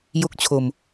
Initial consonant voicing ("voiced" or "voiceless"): voiced